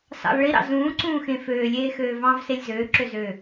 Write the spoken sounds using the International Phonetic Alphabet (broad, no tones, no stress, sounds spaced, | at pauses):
s ɑ̰ lˠ ɭ i ɾ ɑ̰ z ũː ǀ ũː x ẽ f øː lʲ eː x øː v ɑ̃ː v s e lʲ z øː ǁ ø z ø